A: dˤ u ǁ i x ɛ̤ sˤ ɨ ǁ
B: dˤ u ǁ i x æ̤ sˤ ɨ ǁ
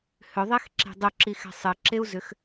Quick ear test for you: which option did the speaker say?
A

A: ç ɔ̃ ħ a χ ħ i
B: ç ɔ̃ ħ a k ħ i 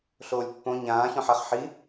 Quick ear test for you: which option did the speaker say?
A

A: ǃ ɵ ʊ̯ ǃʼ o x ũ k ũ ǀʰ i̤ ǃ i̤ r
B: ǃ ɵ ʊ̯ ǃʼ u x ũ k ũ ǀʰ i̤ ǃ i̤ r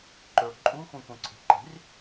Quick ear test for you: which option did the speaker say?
B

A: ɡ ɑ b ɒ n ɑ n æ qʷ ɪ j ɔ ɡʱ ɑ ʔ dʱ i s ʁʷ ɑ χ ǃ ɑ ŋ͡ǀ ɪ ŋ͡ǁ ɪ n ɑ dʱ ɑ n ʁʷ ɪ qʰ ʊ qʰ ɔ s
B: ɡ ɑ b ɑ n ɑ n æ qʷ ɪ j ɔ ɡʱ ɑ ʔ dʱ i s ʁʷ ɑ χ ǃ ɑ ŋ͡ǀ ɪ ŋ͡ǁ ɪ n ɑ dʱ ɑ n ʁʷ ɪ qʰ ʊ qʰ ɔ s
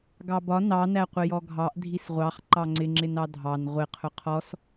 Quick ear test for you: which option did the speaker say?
A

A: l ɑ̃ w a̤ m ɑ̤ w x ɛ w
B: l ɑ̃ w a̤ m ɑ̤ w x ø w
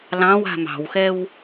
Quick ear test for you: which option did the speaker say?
A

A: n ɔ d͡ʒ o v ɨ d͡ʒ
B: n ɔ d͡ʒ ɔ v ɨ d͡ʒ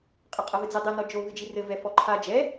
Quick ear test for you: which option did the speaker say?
A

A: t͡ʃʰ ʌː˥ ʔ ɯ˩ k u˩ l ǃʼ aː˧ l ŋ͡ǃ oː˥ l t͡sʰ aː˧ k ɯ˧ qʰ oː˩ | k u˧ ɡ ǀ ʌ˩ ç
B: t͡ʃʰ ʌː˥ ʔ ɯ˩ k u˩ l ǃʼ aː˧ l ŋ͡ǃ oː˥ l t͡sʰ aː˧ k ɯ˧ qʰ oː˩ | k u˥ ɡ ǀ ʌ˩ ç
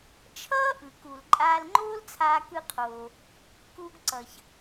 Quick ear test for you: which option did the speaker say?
A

